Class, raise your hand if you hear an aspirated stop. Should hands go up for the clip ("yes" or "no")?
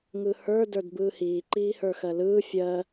no